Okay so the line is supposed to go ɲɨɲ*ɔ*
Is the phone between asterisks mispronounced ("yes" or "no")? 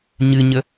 yes